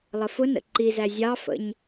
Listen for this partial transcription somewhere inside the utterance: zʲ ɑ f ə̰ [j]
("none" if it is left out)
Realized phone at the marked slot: ɲ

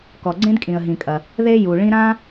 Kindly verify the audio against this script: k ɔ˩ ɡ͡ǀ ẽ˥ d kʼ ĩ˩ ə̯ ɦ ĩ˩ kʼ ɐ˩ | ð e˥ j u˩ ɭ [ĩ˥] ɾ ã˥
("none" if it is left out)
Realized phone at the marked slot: ĩ˥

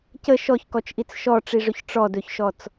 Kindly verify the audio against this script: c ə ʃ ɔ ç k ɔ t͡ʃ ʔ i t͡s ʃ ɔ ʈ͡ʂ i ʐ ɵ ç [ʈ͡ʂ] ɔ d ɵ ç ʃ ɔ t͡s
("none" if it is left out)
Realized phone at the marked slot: ʈ͡ʂ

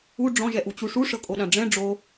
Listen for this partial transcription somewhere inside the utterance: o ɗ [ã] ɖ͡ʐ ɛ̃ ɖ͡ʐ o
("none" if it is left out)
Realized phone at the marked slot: ã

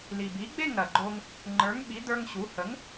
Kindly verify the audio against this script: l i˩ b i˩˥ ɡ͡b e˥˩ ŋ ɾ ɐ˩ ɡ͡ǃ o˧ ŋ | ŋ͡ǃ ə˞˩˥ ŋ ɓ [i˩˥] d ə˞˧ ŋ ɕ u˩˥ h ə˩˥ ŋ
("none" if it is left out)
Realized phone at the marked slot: i˩˥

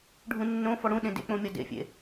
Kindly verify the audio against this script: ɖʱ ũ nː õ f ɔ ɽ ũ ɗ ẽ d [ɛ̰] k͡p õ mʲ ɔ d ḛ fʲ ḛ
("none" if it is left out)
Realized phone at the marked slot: ḛ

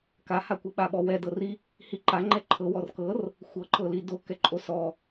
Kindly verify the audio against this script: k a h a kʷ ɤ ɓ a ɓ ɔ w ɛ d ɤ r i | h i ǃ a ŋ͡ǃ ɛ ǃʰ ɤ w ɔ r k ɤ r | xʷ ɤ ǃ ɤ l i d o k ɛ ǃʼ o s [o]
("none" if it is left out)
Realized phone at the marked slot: ɔ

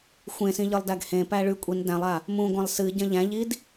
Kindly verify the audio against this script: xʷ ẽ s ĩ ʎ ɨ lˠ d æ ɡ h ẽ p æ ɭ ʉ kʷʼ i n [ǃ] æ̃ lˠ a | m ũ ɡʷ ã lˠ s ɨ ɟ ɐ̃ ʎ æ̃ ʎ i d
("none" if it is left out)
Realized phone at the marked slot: d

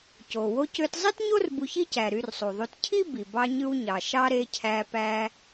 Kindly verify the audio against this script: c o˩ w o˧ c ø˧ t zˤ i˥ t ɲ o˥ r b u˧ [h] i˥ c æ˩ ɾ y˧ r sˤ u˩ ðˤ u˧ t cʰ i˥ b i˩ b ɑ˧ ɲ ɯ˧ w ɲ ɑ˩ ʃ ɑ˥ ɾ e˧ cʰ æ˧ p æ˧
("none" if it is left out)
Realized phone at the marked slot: ç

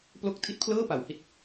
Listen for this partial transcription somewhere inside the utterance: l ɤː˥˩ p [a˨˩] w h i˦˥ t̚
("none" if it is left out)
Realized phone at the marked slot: a˨˩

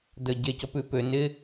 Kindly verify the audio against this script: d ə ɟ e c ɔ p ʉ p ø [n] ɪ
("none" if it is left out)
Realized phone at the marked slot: n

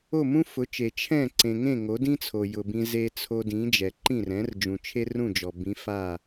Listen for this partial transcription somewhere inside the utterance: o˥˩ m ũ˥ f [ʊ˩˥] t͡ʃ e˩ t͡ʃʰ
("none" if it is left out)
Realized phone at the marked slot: ʊ˩˥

